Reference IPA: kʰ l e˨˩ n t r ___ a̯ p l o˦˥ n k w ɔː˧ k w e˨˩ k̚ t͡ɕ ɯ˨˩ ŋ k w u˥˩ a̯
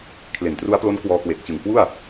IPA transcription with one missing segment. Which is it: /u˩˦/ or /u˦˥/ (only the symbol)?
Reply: u˦˥